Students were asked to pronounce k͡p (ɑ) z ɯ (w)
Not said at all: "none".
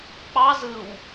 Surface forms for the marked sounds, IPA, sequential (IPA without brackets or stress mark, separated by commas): ɑ, w